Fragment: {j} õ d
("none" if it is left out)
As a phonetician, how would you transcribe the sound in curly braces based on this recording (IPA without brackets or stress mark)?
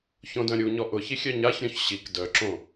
ç